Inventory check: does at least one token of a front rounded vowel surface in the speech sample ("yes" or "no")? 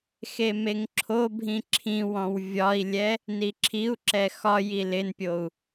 no